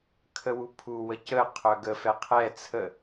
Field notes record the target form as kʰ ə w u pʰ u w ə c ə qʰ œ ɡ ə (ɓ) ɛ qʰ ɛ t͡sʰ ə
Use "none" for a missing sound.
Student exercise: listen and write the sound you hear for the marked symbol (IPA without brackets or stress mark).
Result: f